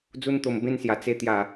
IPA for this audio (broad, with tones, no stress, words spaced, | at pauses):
d͡zu˦nt̪o˧mbẽ˦nsja˧ t͡se˥˧t̪ja˥˧